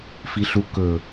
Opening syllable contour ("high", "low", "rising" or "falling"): low